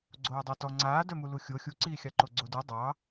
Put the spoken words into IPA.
ɡ͡ǀ oː dˤ a t ɔ ŋ͡ǀ aː d œ m u l u xʲ o xʲ u ǀ iː xʲ ɑ ǃ o ɡ͡ǀ o d u dˤ ɑ

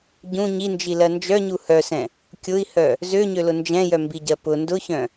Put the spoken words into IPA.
ɟ ũ ɲ i n d͡ʒ i l ɜ n d͡ʒ œ ɲ u h œ s ɛ̃ | kʲ ʊ i̯ h œ | z ø ɲ ø l ʊ n d͡ʒ ɛ̃ j œ m b i ɟ ɜ p ʊ n d ʊ ç œ̃

